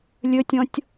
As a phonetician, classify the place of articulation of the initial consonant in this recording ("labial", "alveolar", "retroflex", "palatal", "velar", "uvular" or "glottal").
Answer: alveolar